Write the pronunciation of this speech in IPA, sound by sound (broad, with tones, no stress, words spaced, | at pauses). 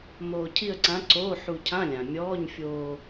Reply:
moː˧cʰi˥˧ə̯ǀã˧˥ǀoː˧˥˧ ħu˧cʰã˧˥˧lʲã˩ mʲɔː˧˥˧ɲfʲoː˧